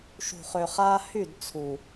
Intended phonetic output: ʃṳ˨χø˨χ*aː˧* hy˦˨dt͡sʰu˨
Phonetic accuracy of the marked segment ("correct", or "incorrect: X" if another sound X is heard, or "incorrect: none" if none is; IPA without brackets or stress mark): correct